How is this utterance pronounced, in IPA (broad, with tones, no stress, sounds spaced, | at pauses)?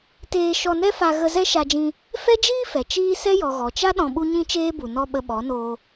t eː˧ ʃ ɔ˧ n ɛ˦ f a˧ ɣ ə˧ z ɛ˦ ʃ a˧ d͡ʒ ĩ˧ | f ɛ˦ d͡ʒ iː˦ f ɛ˨ t͡ʃ iː˦ s ɛ˦ j ɔ˨ ɣ ɔ˨ t͡ʃ a˦ ɗ ɔ̃˧ ɓ u˦ ɲ ĩ˦ t͡ʃ eː˦ b u˨ n ɔ˦ ɓ ə˧ ɓ ɔ˨˦ n oː˧